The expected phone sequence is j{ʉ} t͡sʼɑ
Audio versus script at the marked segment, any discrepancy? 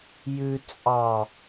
no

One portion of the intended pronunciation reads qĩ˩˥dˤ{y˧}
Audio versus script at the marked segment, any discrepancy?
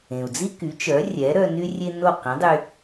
no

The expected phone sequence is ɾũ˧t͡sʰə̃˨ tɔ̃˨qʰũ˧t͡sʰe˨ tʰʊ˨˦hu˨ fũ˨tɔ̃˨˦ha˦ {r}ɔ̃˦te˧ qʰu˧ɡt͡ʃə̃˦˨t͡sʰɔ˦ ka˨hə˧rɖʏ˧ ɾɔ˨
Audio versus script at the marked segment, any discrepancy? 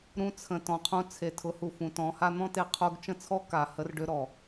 yes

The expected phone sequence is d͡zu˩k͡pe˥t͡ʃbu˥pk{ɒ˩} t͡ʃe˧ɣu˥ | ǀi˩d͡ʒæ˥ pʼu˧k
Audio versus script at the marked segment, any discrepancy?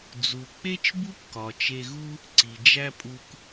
no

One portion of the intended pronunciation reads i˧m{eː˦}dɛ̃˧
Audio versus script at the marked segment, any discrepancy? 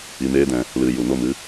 no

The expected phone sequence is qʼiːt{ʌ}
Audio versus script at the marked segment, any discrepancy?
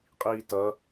no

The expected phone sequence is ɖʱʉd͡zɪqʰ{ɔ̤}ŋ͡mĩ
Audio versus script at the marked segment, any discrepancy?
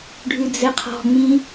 no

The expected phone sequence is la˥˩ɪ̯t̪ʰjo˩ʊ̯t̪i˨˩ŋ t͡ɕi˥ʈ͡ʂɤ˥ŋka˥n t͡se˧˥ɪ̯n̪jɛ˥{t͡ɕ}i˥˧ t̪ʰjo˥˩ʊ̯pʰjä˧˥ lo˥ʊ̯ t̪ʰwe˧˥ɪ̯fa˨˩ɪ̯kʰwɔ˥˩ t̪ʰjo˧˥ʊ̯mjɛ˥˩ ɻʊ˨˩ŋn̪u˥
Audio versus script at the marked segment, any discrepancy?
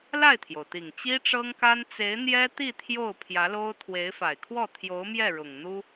yes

